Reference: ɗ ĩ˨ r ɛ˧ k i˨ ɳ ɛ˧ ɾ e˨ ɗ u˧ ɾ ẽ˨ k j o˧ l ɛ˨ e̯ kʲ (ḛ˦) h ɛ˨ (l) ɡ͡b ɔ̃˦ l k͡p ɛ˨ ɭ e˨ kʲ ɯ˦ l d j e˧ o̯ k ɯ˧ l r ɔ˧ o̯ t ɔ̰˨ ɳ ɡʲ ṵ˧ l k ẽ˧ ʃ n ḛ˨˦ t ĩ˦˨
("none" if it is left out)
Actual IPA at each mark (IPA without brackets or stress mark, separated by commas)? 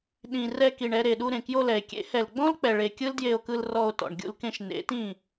ḛ˨˦, l